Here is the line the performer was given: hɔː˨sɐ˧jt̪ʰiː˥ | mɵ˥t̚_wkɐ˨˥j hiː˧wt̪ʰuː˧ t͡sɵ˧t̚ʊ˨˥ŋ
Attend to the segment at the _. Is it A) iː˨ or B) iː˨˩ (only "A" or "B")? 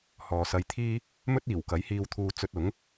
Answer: B